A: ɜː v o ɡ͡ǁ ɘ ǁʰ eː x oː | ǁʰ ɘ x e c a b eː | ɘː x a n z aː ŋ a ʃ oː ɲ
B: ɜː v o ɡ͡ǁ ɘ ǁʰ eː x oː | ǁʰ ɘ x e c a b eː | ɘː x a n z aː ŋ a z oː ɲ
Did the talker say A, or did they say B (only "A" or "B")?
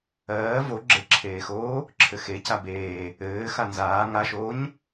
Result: A